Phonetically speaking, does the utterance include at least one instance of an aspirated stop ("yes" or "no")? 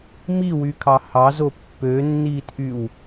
yes